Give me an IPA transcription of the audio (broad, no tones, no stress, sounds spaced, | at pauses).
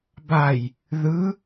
b a j | ð ɯ